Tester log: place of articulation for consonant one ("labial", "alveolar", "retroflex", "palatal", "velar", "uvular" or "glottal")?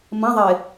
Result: labial